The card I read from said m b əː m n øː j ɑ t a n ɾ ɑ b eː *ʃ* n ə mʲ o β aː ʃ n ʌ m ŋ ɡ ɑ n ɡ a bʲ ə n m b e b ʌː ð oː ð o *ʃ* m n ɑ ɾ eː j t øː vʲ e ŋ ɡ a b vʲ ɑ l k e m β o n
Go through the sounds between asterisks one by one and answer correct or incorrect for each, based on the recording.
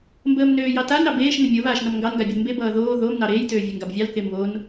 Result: correct, incorrect

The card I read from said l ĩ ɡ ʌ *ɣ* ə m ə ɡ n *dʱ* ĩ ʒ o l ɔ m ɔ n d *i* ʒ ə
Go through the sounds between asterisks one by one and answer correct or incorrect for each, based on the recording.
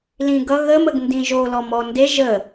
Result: correct, incorrect, incorrect

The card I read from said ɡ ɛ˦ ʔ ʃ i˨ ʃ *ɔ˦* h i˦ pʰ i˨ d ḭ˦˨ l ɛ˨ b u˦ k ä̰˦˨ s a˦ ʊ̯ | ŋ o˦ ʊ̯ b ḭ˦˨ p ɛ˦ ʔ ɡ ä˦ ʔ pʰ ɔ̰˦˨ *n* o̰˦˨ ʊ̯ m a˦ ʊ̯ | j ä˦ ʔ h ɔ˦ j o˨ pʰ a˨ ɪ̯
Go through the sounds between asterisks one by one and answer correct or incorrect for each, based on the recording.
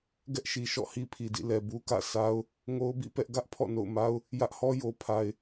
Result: incorrect, correct

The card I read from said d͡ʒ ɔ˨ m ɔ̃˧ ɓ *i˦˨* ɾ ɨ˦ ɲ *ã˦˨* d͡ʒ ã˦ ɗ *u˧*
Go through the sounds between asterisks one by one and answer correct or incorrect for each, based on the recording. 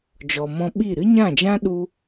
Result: correct, correct, incorrect

